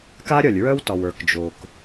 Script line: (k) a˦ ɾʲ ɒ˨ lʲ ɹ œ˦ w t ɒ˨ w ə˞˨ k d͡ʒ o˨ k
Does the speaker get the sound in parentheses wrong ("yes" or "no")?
no